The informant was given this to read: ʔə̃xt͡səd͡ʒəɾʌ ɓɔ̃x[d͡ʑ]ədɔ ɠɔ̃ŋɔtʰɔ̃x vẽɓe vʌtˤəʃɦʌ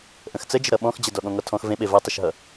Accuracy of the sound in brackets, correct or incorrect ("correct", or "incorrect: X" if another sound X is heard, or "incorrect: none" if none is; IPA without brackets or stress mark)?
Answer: correct